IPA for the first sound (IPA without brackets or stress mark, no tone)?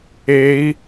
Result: e